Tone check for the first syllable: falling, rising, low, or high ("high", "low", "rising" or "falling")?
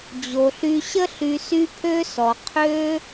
low